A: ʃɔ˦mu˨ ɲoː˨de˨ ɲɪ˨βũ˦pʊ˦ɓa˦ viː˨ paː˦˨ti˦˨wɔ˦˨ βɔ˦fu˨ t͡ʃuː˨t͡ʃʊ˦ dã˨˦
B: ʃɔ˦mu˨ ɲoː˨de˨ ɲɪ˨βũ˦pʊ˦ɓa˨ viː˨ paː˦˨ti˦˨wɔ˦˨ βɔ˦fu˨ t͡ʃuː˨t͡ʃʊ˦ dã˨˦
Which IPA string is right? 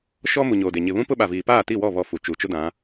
B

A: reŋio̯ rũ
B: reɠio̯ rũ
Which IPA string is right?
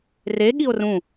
B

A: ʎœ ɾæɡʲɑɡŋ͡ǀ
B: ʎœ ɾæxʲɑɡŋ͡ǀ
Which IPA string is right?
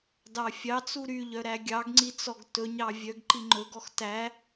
A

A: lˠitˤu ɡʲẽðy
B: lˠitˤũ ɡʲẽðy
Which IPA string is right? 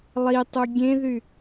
A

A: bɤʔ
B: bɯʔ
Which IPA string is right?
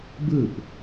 B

